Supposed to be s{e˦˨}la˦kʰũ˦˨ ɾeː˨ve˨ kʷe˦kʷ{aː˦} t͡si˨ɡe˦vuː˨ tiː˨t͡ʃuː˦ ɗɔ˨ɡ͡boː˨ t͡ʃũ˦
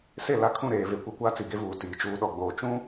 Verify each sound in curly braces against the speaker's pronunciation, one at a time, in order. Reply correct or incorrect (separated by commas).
correct, correct